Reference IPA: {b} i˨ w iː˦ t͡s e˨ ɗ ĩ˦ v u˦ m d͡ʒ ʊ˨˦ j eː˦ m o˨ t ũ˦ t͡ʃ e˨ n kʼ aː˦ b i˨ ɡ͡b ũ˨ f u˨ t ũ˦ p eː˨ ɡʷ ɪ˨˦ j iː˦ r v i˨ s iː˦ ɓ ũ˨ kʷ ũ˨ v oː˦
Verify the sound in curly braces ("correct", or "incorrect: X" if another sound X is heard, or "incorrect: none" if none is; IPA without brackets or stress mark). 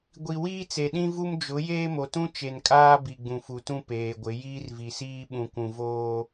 incorrect: ɡʷ